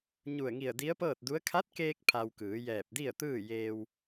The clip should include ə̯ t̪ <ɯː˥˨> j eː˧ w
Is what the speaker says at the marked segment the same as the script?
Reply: yes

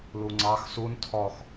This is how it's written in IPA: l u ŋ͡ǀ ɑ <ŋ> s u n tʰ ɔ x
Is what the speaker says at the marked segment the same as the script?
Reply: no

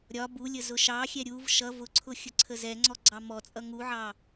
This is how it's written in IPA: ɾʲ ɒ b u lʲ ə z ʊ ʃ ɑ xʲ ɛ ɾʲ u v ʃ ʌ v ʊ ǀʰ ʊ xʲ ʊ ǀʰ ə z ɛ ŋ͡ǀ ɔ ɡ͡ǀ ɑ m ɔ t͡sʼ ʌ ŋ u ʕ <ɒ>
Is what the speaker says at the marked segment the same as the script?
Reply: no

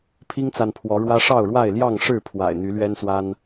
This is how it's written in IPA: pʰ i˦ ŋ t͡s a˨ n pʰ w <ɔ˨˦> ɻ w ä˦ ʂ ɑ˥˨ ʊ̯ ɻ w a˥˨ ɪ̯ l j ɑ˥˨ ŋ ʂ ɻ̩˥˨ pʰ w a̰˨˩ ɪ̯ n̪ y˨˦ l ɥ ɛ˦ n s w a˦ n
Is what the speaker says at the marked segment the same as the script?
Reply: yes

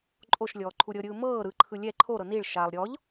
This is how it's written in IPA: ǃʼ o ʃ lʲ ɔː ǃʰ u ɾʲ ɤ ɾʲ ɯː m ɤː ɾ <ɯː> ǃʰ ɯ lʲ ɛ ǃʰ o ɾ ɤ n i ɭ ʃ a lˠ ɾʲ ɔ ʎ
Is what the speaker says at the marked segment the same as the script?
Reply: no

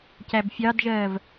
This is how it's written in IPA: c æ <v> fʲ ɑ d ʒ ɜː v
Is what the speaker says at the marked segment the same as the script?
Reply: no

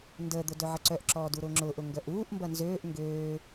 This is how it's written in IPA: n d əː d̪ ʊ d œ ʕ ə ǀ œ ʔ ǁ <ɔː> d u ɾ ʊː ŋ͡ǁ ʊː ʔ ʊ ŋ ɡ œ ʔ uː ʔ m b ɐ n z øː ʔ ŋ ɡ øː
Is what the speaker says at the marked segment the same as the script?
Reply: yes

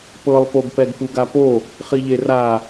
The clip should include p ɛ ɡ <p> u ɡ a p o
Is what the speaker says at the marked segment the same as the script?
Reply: yes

